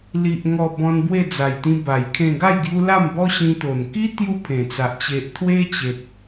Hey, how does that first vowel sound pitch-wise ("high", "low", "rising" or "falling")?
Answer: low